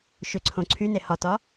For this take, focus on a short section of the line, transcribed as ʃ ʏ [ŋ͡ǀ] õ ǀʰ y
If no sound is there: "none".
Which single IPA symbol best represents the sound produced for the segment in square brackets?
ǀʰ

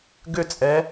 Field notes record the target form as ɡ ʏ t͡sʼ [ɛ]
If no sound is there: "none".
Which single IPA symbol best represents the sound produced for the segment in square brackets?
ɛ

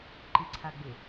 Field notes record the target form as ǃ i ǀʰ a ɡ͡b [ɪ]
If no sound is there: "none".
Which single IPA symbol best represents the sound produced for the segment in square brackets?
ɪ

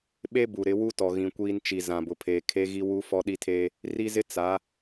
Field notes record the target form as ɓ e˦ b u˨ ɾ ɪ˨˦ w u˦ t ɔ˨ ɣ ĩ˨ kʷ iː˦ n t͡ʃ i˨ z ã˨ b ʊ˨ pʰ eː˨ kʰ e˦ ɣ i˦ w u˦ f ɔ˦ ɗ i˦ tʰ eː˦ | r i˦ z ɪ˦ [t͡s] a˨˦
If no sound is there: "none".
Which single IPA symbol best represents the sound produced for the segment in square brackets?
t͡s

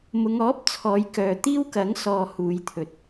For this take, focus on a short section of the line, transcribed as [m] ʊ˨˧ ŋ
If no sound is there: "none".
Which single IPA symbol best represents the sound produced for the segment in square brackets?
m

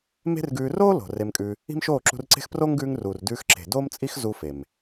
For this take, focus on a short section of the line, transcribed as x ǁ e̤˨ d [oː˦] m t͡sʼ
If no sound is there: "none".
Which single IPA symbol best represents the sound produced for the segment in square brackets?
oː˦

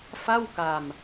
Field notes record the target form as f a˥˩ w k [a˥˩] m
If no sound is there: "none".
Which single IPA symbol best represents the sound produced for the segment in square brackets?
a˧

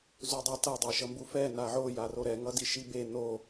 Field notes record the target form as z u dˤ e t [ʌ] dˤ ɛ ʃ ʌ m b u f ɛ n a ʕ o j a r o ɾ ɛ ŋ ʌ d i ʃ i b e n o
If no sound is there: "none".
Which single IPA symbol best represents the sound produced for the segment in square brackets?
ʌ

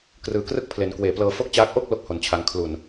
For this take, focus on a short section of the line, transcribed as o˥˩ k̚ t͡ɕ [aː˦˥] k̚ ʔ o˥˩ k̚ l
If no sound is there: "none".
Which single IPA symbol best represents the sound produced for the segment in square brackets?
aː˦˥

